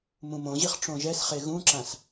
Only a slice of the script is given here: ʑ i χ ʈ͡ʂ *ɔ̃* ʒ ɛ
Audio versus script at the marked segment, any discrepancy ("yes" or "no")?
yes